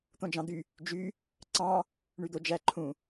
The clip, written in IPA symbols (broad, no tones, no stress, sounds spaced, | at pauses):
t̪ õ d͡ʒ ɑ̃ d̪ y | d͡ʒ y | ǀ ɑ̃ | ɳ y d̪ o d͡ʒ æ ǃʰ ũ